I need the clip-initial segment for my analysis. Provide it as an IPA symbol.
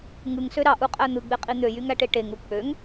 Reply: ŋ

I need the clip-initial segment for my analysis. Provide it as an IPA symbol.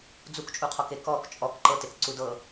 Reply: d͡z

